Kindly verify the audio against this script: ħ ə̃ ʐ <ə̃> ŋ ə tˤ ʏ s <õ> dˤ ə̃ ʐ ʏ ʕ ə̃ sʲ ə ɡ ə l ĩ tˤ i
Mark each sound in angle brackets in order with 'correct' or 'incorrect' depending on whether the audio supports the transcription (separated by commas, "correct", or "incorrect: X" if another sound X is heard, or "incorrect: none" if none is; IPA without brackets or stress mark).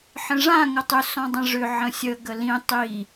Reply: incorrect: ã, incorrect: ɔ̃